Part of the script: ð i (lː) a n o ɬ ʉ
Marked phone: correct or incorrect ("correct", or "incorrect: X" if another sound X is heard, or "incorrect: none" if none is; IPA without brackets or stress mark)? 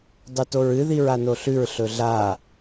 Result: incorrect: ɹ